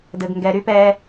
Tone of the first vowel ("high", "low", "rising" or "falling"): low